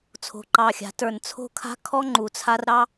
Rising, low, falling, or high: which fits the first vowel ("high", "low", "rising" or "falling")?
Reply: low